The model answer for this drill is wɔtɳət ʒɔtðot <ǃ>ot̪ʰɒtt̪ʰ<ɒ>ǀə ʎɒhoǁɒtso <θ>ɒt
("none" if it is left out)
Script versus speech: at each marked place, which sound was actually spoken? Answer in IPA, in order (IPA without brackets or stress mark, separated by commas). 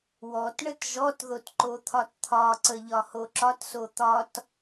ǃ, ɒ, t̪